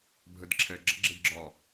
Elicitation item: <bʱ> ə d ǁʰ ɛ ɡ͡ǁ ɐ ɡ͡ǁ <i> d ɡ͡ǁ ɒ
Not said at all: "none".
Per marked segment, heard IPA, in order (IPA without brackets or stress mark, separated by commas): bʱ, e